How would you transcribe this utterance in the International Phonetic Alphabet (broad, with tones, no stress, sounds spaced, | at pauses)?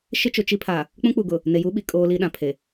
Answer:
ʃ ɪ˦ t͡ʃ ʊ˨ t͡ʃ i˦ pʰ a˨ | k͡p ũ˦ k͡p u˨ ɡ ʊ˨ | n e˨ j u˦ ɓ i˨ kʼ oː˦ l i˦ ɗ ã˨ pʰ e˨